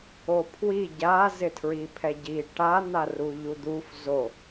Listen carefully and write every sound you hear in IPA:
opʰwi ɟa zɪtʰɹipʰɛɟi ʈan̪aru ʎud̪uf zo

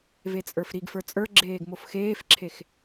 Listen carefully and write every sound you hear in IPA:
vet͡sʼə˞fɾiɡfə˞ t͡sʼə˞ɡ͡ǁeːɡ mofxeːfǁʰex

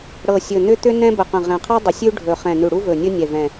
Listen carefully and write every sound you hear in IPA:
ɽɤ˨˩sʲɵ˨˩n̪ʏ˥ t̪ʏ˥nɛ̃˥ bə˨˩qə̃˨˩ʁɛ̃˨˩qʰɛ˥ dˤə˨˩sʲʉ˥ɖʱɵ˨˩ χɛ̃˨˩nʉ˨˩ɽu˥vɵ˨˩ nʲɵ˥nʲɛ˨˩vɛ̃˨˩

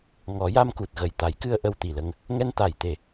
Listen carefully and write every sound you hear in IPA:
ŋɔ˨˩˦ja˧mku˨˩t̚ ɣə˨˩j t̪a˨˩˦jkɨ˧ə̯ ʔə˧wt̪i˨˩lə˧ŋ | ŋɛ˧nt̪a˨˩˨jt̪e˨˩˨

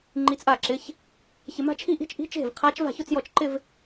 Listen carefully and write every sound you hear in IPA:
ŋ͡ǃi˧˥t͡sʔa˥˩ǁɪ˧˥˧ç | çɪ˧ma̤˥˧t͡ʃʰi˥˧ʔi̤˥˧t͡ʃ ʔi̤˧˥˧t͡ʃe̤˥˩vqʰa˧˥t͡ʃ va̤˥˩çʊ˥˧t͡sjɔ˥˩t͡ʃǃɪ˥˧v

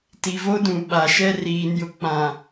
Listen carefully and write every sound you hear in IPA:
ti˨vo˦dũ˨ ɓa˨ʃɛ˦ riː˨njʊ˨k͡pã˨

